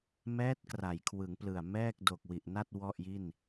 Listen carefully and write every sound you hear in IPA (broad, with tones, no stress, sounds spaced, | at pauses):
m ɛː˦˥ t̚ k r a˩˦ j kʰ w ɯ˩˦ ŋ p l ɯ˨˩ a̯ m ɛː˥˩ k̚ d o˨˩ k̚ w i˨˩ ʔ n a˥˩ t̚ w ɔ˥˩ ʔ j i˥˩ n